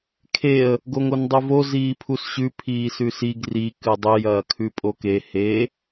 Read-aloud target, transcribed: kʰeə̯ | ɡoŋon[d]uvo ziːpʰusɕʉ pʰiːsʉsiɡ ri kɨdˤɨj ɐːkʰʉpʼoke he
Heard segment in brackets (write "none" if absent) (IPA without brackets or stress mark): dˤ